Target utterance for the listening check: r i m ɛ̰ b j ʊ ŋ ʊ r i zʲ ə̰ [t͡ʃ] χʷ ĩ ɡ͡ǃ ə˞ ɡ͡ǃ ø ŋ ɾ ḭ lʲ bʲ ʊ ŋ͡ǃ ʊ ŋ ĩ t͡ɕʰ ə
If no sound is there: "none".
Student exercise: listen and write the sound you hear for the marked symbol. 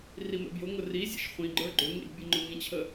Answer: ʃ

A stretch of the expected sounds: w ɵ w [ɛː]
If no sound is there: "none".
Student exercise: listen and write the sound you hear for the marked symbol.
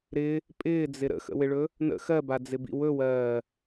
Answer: ɜː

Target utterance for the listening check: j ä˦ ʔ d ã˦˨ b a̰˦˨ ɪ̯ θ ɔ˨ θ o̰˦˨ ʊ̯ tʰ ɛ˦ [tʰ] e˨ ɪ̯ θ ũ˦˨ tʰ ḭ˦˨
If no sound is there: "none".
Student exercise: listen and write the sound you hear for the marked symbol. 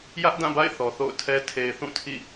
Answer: tʰ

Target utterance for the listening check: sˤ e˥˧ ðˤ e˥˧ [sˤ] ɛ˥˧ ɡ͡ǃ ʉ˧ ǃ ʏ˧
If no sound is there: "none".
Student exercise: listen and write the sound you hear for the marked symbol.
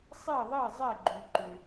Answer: zˤ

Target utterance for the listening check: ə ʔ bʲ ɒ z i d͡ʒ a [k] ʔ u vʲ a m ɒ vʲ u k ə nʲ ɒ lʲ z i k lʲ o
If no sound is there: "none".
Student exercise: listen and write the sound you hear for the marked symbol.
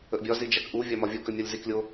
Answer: k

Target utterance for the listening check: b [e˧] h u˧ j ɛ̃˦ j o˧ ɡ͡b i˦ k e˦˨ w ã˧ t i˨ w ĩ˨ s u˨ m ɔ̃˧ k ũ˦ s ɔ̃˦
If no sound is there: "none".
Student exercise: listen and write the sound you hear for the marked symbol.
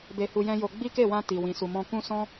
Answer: e˧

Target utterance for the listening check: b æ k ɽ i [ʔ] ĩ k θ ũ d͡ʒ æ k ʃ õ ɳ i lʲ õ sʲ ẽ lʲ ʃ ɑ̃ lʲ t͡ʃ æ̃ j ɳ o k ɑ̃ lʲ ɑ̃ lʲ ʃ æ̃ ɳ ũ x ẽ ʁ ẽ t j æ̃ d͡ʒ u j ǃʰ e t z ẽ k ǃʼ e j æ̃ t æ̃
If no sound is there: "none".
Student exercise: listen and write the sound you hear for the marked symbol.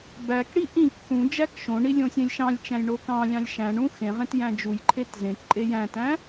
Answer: ʔ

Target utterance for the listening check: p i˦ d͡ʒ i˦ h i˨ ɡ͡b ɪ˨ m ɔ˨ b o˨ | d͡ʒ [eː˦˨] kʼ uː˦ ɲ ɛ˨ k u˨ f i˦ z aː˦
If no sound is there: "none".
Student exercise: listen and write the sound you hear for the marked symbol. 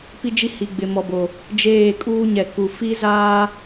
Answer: eː˦˨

